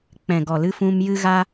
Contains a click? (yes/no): no